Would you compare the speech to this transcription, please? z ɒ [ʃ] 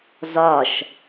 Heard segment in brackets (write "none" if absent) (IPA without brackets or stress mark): ʃ